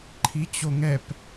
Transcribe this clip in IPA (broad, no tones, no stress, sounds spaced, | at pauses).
ǃʰ i t͡ɕ o ŋ ɛ p